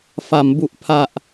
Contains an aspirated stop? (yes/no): yes